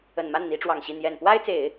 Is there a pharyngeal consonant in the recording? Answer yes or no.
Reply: no